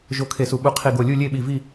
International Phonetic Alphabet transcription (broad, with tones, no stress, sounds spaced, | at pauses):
ʒ o˧˩ kʰ e˧˩ s u˧˩ ɓ u˧˩ qʰ i˧˩ ɡ o˧˩ lʲ u˥˨ lʲ e˥˨ ɓ i˧˩ v i˥˨